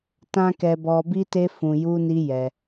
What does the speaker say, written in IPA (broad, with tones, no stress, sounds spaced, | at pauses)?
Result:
t ã˦ k ɛ˧ b ɔ˧ b i˦ t e˦ f ũ˧ j u˦ n i˦ j ɛ˧